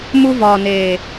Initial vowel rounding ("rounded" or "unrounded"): rounded